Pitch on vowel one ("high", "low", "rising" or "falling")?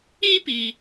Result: high